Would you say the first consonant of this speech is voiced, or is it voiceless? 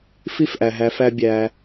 voiceless